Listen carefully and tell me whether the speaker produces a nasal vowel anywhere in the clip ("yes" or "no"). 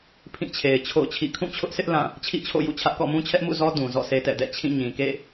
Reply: yes